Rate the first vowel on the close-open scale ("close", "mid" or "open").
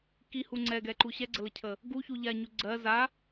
close